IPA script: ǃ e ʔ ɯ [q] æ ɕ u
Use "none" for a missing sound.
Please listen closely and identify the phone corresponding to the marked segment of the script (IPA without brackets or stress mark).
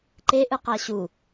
q